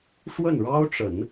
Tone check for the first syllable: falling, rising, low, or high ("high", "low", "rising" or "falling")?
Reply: falling